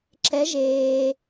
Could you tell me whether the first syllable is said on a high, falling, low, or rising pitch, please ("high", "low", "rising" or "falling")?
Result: rising